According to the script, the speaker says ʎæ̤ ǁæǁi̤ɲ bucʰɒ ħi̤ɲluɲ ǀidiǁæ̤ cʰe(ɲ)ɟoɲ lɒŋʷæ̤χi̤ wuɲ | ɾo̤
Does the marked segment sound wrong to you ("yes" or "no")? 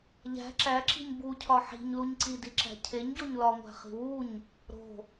no